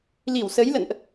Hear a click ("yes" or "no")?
no